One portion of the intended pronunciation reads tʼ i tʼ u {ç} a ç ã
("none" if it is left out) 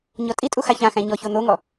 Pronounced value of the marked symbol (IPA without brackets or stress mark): x